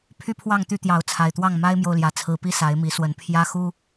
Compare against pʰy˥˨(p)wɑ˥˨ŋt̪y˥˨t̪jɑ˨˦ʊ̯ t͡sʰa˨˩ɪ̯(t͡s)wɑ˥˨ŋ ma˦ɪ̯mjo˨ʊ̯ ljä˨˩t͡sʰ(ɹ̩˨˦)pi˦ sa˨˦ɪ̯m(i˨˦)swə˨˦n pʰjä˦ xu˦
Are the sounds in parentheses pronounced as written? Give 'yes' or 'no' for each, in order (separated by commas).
no, no, yes, yes